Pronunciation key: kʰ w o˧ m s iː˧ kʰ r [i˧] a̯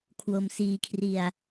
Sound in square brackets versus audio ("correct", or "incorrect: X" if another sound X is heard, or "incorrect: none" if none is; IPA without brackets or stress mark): correct